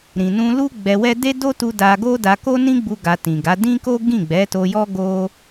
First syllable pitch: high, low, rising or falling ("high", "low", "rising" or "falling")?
low